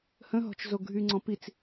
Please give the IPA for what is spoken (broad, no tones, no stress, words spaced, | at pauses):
hə̃ɦɔ̤t͡ʃ zoɡʱyŋ͡ǀɔ̃ pit͡s